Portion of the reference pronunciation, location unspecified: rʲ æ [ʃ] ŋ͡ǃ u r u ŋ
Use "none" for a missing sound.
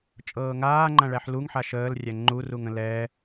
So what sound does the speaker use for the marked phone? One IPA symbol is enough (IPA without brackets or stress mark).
none